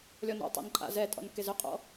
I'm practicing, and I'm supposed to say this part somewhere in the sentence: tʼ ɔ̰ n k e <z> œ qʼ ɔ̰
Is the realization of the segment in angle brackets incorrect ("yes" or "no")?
no